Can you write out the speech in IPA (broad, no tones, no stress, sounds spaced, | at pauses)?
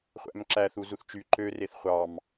χʷ æ̰ m ǁ æ θ u z u θ t͡ʃ y ǃ ø r e θ χʷ ɑ m